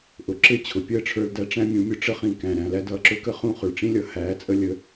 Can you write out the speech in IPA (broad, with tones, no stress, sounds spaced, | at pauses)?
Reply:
ʔ ʊ˩˥ ǁ ɪ˥˩ t͡ɕʰ ʊ˩ pʲ əː˥˩ ʈ͡ʂʰ ə˞˧ l d æ˧ ʈ͡ʂ æ̃˥ mʲ ũ˩˥ mʲ ʊ˧ ʈ͡ʂ ə˥ χ ĩ˩ k æ̃˩ ɾ æ̃˥˩ l æ˥ d ʌː˩ ǁ ʊ˥ k ə˥ χ ũ˥˩ χ ʊ˩ ɭ ʈ͡ʂ ĩ˥ lʲ ʌ˩ h æː˩˥ t͡sʼ ə˧ lʲ ə˧